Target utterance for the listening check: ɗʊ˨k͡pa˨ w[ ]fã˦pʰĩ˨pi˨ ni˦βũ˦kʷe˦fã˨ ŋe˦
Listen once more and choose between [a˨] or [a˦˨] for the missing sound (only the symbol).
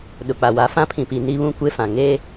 a˨